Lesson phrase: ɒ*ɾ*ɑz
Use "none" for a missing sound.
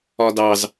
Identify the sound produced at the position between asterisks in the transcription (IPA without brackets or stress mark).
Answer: d